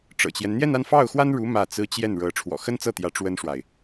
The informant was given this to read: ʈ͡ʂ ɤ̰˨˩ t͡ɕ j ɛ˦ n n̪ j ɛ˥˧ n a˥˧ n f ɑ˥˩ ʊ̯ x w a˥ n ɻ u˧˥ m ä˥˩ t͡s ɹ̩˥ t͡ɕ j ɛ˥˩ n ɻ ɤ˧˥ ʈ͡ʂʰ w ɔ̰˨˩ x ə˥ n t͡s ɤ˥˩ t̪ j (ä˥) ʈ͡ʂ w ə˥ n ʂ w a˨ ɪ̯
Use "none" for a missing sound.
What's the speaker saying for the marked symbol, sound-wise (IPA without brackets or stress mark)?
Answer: ä˧˥